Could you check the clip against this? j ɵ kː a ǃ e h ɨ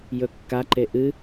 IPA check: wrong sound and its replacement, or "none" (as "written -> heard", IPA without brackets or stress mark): h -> ʔ